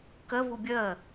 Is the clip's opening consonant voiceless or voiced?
voiceless